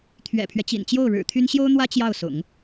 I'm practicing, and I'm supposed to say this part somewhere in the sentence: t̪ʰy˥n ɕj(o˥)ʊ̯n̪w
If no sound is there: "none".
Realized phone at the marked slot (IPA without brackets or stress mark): o˥